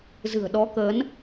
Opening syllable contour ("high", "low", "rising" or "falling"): low